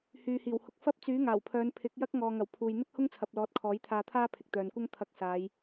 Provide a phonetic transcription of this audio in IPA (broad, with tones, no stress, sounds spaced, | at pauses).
h yː˨ h iː˨˩ w h ʊ˨ k̚ f ɐ˥ p̚ t͡s yː˨˥ ŋ aː˨˩ w pʰ œː˨˧ n pʰ ɪ˨˥ k̚ j ɐ˥ k̚ ŋ ɔː˨ ŋ ɐ˨˩ w pʰ uː˨ j n̪ ɪ˥ k̚ h ʊ˥ ŋ t͡sʰ ɐ˨ p̚ l ɔː˨˥ t̚ kʰ ɔː˨˥ j t̪ʰ aː˧ t̪ʰ aː˥ pʰ ɪ˨ k̚ t̪ œː˨ n kʷ ɐ˥ ŋ t̪ʰ ɐ˧ k̚ s aː˨˧ j